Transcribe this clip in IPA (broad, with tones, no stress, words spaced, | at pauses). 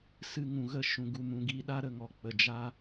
sɨ˧ ŋũ˨ɣə˦˨ ʃũ˨ ɡu˧mũ˧ɡi˦ ɗa˦ ɾə˧ŋɔ˧ k͡pə˨d͡ʒa˦